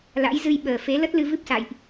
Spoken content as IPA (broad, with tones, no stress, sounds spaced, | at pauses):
l a̰˧˥ j z ɨ˧ j ɓ əː˨˩ f e˨˦ l ə˦˥ t̚ l ɨ˧ v ɨ˦˥ p̚ s a̰˧˨ j ʔ